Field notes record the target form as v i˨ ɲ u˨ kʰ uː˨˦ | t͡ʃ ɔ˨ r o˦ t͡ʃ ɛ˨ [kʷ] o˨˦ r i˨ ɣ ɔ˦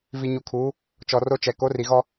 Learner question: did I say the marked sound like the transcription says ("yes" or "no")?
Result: no